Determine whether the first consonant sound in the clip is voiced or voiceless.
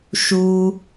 voiceless